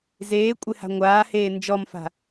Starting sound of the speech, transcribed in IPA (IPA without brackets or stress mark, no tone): z